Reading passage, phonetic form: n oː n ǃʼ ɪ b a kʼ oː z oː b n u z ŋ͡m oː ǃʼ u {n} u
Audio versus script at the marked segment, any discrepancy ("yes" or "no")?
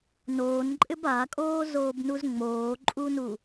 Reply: no